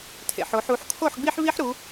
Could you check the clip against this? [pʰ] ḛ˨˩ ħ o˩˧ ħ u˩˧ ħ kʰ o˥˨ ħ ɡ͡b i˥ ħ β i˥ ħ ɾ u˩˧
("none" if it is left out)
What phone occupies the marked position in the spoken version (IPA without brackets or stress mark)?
tʰ